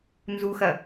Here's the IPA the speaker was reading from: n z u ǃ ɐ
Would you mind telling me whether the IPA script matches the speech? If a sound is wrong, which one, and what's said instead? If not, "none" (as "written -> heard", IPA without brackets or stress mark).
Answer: ǃ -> x